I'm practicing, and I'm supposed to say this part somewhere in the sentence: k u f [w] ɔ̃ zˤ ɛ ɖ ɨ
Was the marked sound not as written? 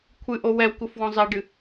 no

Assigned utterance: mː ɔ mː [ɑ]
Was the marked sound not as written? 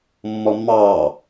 no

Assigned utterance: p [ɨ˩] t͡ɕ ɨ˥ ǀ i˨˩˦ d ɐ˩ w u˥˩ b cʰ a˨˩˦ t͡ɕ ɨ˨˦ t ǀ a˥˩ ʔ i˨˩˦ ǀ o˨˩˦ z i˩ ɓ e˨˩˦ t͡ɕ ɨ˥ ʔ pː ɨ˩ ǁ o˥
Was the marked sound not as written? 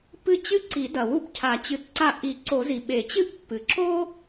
yes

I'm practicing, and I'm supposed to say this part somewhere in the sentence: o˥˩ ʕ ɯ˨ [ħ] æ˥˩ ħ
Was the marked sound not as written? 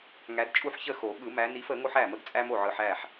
no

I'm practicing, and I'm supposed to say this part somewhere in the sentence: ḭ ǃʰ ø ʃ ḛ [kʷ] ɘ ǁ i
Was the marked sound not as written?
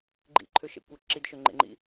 no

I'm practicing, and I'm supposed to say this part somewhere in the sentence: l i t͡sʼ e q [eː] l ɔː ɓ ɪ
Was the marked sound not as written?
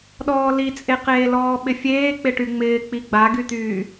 no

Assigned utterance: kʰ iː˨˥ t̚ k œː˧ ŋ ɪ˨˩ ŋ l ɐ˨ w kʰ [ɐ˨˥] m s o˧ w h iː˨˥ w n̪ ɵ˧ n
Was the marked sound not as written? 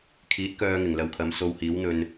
no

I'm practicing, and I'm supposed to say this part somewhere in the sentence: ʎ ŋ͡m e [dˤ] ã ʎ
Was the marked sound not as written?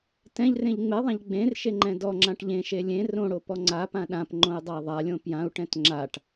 yes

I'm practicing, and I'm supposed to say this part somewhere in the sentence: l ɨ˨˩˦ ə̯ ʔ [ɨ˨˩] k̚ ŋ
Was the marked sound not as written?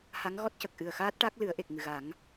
yes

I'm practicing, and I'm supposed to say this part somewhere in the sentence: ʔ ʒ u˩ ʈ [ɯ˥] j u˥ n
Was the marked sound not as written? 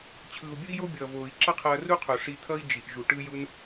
no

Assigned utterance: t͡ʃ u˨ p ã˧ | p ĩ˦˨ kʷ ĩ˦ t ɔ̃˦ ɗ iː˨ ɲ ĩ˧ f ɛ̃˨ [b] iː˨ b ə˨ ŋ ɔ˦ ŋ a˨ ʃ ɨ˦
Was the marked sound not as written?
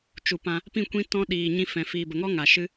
yes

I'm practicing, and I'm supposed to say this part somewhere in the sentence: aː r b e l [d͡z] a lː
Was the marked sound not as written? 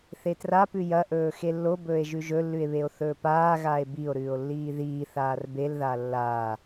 yes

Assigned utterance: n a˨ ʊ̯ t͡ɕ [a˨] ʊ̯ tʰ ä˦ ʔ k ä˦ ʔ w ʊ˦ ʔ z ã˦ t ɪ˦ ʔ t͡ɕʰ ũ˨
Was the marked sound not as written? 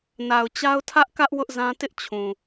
yes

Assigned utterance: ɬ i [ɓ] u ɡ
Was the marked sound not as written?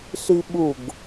no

